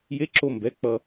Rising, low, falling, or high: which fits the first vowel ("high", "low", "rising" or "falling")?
rising